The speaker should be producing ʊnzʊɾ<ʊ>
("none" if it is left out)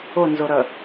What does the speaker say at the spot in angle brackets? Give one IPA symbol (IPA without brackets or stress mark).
ə